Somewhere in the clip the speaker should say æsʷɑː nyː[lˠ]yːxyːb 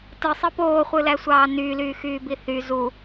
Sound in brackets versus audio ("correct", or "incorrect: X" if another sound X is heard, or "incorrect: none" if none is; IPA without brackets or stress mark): incorrect: l